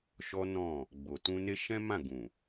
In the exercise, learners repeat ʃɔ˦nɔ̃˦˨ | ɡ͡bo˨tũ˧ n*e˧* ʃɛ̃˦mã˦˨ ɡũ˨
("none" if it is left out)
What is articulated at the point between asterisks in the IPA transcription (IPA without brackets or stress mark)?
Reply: e˧